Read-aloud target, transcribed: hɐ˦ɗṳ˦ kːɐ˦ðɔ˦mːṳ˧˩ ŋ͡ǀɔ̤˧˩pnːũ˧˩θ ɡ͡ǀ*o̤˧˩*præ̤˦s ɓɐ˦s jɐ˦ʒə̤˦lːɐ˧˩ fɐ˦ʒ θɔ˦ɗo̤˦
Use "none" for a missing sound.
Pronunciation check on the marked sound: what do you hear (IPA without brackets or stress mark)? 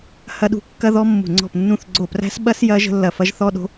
o˧˩